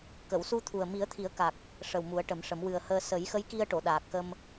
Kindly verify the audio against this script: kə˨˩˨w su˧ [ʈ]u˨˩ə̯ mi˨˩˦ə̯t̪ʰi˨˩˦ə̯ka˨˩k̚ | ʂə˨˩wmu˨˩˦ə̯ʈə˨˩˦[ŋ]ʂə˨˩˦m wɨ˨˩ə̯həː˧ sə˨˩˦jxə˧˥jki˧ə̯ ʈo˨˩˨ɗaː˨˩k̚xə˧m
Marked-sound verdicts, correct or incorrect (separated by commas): incorrect, incorrect